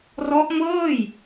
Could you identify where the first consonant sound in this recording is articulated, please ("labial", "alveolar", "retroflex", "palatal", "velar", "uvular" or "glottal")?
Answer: alveolar